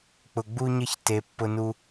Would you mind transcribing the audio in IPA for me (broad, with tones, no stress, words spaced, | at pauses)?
k͡pʊ˨ɡ͡bu˦ɲə˦ç te˨˦pːʊ˦nu˦